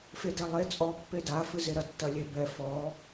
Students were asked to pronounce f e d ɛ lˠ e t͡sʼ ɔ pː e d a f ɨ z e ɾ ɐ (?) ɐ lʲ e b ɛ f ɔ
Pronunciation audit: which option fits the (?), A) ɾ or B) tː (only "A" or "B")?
B